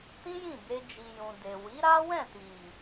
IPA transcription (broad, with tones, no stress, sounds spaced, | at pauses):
t ĩ˦ j ĩ˦˨ b e˧ d͡ʒ i˨ j ũ˨ d e˨ w i˨˦ ɾ a˦ w ɛ̃˦˨ t i˨